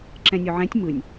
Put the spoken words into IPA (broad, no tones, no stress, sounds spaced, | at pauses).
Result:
ǁ ɛ̃ nʲ o ʕ ɛ̃ tʲ m ɯ nʲ